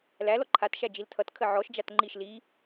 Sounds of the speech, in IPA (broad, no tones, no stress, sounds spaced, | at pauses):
l æ l ɔ ǃʰ a t ʃ æ d͡ʒ i l tʰ ʌ t kʰ ə ʕ ɔ ʃ d͡ʒ a t ŋ͡ǃ i ʃ l i